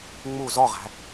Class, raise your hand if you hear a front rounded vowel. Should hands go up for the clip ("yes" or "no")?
no